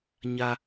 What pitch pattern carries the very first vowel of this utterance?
high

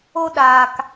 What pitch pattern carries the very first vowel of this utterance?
high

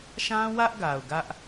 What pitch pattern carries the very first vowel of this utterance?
high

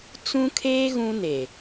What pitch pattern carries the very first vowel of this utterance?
high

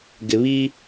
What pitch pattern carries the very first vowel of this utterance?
low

